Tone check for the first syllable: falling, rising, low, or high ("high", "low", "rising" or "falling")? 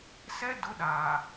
high